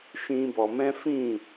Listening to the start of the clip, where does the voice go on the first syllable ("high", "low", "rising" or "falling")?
high